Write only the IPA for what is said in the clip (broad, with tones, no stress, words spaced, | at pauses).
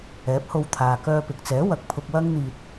ɛː˨˥p̚ho˧wt̪ʰaː˨ kœː˧pɪ˨k̚t͡sɛː˨˥ wɐ˨k̚pʰʊ˧k̚ wɐ˥ŋn̪iː˧t̚